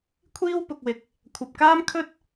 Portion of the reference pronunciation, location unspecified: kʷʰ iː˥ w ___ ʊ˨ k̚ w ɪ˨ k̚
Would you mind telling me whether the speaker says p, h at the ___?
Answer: p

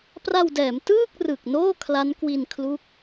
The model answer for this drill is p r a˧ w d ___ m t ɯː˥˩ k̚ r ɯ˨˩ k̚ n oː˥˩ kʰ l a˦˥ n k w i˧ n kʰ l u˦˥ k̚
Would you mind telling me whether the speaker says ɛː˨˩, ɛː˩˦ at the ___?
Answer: ɛː˩˦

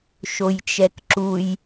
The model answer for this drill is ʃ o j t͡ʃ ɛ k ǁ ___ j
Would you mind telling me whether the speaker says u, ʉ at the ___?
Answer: u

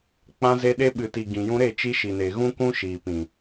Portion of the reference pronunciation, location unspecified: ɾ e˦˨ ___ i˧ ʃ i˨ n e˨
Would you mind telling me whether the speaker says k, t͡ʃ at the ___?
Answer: t͡ʃ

